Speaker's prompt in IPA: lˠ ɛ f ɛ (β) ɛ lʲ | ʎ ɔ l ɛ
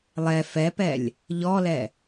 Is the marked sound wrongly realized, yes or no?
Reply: yes